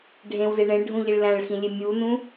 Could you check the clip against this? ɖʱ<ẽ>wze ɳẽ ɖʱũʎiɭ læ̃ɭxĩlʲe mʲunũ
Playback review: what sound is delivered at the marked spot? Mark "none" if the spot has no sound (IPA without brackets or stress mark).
ẽ